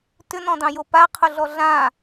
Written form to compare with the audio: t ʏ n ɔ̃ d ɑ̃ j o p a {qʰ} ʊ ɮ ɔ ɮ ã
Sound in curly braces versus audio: correct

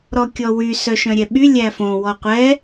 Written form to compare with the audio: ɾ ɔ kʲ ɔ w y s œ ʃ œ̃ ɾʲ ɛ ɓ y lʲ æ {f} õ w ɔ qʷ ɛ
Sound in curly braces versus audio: correct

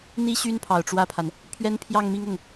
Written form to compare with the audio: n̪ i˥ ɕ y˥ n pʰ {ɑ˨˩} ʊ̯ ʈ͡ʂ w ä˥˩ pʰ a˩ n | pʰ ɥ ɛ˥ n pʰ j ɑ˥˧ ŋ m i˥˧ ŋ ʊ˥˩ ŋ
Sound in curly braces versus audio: correct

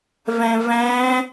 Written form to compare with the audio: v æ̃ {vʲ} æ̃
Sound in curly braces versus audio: incorrect: v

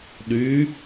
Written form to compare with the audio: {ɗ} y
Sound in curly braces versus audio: correct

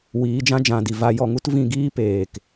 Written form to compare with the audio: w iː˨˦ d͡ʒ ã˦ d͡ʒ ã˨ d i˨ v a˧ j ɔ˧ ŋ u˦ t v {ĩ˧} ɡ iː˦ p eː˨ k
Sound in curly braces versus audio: correct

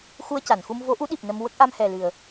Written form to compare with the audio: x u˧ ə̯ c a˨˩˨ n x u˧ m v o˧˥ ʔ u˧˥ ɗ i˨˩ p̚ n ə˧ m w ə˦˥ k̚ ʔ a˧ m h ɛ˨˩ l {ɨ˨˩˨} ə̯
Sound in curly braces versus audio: correct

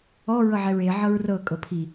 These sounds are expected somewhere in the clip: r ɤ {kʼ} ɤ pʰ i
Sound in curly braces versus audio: correct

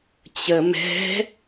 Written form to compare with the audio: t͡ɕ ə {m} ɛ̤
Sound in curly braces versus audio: correct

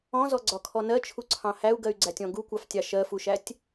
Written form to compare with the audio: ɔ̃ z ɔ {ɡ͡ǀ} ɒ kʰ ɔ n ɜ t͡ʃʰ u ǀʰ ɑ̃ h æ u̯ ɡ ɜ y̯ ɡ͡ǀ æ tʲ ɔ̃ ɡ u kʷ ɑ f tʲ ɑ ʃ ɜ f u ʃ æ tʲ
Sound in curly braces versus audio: correct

